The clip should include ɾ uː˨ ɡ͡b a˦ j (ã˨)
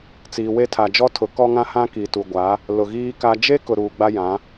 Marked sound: incorrect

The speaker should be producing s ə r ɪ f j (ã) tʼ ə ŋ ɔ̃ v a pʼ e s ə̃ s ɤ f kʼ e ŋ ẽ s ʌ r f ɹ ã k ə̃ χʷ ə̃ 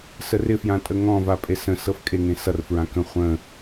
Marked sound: correct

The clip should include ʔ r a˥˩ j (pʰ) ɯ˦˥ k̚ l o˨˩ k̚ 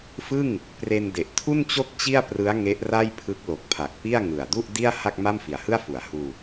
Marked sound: correct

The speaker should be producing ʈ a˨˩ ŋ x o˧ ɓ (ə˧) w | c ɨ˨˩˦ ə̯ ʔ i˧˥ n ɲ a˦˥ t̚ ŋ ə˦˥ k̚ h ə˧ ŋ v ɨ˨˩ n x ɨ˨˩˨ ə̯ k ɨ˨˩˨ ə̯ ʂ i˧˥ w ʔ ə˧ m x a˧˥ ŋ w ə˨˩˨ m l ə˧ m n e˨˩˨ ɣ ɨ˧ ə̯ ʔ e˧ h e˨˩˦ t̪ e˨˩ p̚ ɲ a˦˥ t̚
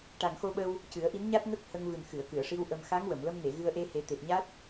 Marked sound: correct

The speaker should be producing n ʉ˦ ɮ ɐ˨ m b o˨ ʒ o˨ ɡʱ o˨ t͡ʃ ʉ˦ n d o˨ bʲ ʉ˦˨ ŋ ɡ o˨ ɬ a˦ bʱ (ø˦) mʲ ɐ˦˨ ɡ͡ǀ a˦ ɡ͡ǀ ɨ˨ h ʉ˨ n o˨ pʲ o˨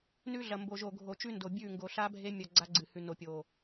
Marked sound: incorrect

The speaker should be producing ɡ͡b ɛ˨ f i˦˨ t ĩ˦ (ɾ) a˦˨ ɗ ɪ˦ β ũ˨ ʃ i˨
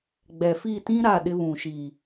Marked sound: correct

